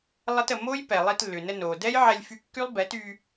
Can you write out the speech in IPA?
lˠ ə˦ t ə˧ m o˦ j p ɛ˨ lˠ i˧ t lː ʏ˨ n ə˧ n o˨ d ɛ˦ j ʕ ɛ˧ lʲ f y˧ kː y˦ lˠ b ɛ˨˦ t y˧

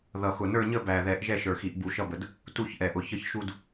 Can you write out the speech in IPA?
ð ʌ˨˩ x ʊ˨˩ n ə˞˥˧ ɲ ə˥˧ b æ˨˩ ð ɛ˨˩˦ ʔ ʒ ɛ˥˧ ʃ ə˞˨˩ x i˨˩˦ ʔ b u˨˩˦ ʃ ʌ˥˧ b ə˨˩ d | t u˥˧ ç ʔ ɛ˨˩ ʔ ʊ˨˩ ç ə˥˧ ç ʃ u˥˧ d

